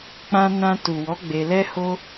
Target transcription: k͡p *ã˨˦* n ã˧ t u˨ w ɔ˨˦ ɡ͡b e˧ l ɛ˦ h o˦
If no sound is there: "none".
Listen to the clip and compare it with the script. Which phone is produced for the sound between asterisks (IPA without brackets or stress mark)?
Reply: ã˧